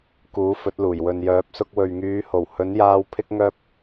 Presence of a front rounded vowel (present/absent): present